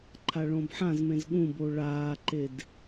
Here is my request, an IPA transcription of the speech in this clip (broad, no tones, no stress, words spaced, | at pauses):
ǃʰaɭõbħãzmẽz ɠũbo ɭaːǃed